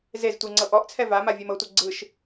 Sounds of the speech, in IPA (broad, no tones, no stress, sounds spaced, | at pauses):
z e z tʷ i ŋ͡ǀ ɤ ʔ ɔ ʔ t͡sʰ ɛ v a m a vʲ e m ɤ tʷ ɤ ɡ͡ǀ ɯ ʃ